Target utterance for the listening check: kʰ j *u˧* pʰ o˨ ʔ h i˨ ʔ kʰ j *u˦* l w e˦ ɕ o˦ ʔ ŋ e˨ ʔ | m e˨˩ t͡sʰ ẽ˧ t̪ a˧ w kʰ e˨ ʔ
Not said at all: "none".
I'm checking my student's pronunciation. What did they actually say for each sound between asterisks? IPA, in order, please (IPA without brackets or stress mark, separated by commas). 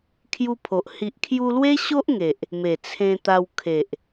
u˧, u˧